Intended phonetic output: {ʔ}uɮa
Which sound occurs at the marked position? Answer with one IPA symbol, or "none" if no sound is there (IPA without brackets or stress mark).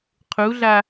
qʰ